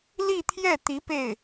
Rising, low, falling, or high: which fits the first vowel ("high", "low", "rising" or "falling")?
falling